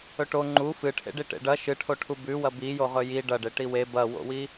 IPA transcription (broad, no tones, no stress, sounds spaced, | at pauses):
ɵ ʈ o ŋ͡ǃ u f ɨ ʈʰ ḛ ɖ i ʈ ḛ ɖ ɐ ʃ ɨ ʈʰ o ʈʰ u b ʉ w ɐ b i j o ʁ ɵ j i ɖ ɐ ɖ e ʈ i w e b ɐ w o̰ w i